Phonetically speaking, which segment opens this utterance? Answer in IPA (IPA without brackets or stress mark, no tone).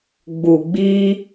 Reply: ɡ͡b